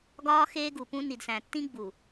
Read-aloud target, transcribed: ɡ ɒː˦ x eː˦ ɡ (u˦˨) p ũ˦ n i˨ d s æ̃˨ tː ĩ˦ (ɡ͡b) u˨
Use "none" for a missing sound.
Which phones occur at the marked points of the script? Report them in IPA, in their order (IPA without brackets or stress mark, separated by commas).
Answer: u˨, ɡ͡b